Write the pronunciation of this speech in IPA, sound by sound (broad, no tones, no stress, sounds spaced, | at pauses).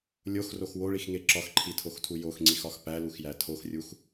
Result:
lʲ o x r o x w o ɭ i x ŋ e ǁ ɒ x ǃʰ i tʰ o x tʰ u j o x ŋ͡ǀ i x ɒ x p æ l u x j æ tʰ o x rʲ u x